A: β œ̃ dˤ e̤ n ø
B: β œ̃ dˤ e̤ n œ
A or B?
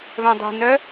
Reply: B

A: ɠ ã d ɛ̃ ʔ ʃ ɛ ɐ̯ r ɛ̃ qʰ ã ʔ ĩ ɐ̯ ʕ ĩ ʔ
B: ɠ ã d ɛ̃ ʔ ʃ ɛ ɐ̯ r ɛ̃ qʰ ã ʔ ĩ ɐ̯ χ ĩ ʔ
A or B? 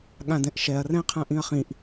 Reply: B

